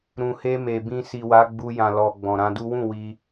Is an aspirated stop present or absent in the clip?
absent